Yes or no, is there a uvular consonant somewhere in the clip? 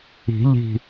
no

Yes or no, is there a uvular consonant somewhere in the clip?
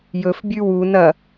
no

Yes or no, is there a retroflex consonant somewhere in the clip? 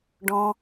yes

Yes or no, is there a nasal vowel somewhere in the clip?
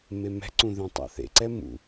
yes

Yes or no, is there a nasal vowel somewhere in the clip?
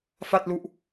no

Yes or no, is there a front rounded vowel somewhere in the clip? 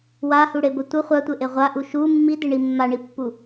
no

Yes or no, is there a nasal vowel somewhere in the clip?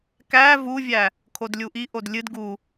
no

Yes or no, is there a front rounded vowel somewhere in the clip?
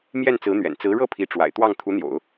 no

